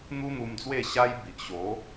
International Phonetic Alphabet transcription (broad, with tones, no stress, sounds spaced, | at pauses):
n̪ u˦ n̪ u˧ m d͡z w e˥˧ ɕ a˦ j b i˨ ʔ ɕ o˨˦